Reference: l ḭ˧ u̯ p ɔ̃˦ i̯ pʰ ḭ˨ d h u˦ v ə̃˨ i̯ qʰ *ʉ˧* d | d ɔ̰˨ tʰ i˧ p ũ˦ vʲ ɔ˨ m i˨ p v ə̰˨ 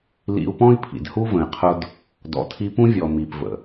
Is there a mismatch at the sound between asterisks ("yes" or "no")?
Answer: yes